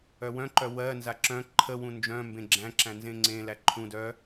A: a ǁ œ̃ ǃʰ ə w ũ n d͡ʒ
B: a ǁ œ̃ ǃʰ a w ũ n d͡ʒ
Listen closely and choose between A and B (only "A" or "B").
A